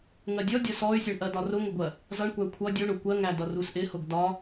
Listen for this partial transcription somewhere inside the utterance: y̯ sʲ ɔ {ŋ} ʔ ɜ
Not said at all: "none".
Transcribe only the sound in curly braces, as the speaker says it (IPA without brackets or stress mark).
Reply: ɳ